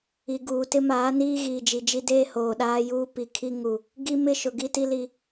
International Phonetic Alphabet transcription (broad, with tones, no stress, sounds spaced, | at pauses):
i˨ ɡ uː˨ t ɪ˦ m aː˨˦ n iː˦ ɣ iː˨ d͡ʒ i˨ d͡ʒ i˦ d eː˦ h oː˨ ɗ aː˦ j uː˦ p i˨ kʰ i˦ ŋ u˨ | ɡ i˦ m ɪ˦ ʃ ʊ˨ ɡ i˦ t i˦ l i˦